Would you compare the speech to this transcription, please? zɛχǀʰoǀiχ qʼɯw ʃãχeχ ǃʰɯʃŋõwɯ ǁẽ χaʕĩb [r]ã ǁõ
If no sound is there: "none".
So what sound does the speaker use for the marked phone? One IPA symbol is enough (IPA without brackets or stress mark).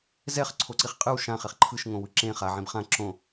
χ